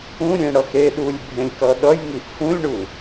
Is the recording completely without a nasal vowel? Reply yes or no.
no